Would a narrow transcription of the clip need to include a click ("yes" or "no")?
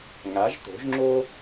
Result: yes